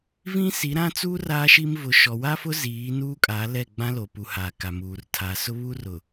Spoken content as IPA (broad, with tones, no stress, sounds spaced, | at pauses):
v ĩ˦ s i˨˦ ɾ ã˦ t͡s uː˦ r aː˦ ʃ i˦ m v ʊ˨ ʃ ɔ˨ w a˦ f ʊ˦ z iː˨˦ n uː˦ kʼ a˨˦ l ɛ˦˨ ɡ͡b ã˦ l o˨ p u˨ h aː˨ k a˨ m uː˨ r tʰ a˨ s ʊ˦ β u˦ r ʊ˨